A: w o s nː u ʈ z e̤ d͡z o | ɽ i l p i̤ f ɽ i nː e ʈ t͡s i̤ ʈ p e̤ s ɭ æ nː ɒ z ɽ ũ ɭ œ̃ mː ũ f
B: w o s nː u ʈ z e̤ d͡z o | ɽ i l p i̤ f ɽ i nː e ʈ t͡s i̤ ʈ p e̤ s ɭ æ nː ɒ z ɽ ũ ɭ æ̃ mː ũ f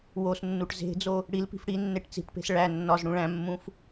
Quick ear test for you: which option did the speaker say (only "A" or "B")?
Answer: B